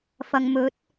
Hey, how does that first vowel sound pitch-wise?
low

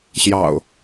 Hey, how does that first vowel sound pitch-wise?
low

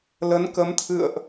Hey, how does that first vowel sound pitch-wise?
rising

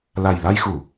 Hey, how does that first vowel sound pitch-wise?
low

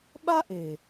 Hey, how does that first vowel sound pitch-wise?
high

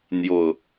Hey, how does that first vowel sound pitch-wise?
falling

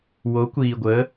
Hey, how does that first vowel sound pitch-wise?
rising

